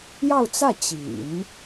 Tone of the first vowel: falling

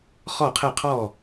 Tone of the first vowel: falling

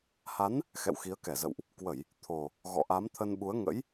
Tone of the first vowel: rising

